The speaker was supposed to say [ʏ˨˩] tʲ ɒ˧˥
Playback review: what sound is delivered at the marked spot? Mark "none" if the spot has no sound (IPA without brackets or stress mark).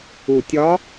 u˨˩